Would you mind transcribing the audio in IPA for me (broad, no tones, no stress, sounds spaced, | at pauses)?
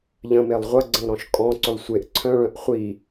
ʎ ə̃ m e lˠ ʁʷ ɐ ɡ͡ǀ ə̃ lˠ ɾ ɔ̃ ʃ kʼ ɔ̃ ǀ ʏ lˠ sʷ e ʔ ǀʰ œ̃ ɭ œ̃ ʔ χʷ i